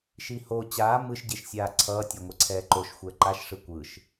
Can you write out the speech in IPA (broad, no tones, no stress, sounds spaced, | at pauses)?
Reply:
ʃ i h o t͡ɕ aː m ɯ ʃ ɟ e ʃ sʲ aː ǀʰ ʌː tʲ ɛ ŋʷ e ǀʰ ɛː ǃ o ʃ xʷ ɛː ǃ a ʃ ʂ ɯ kʷ ɯ ʃ